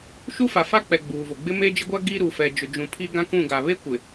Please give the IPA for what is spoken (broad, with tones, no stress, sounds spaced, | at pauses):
ʃ u˦ f a˨ f a˦ k͡p ɛ˨ ɡ͡b uː˨ v o˨ ɡ͡b ɪ˦ m e˦ d͡ʒ ɪ˦ ɡʷ a˦ ɡ i˦ ɾ u˨ f ɛ˨ d͡ʒ ʊ˨ d͡ʒ ũ˨ pʰ i˦ ɡ ã˦ k ũ˦˨ ɡ a˨ β e˦ kʷ ɪ˨